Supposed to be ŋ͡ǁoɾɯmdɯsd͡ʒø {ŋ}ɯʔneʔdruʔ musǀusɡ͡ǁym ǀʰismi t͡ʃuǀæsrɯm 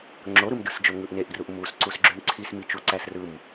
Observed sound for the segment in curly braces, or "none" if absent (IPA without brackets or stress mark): ŋ